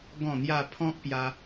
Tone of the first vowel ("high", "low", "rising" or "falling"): low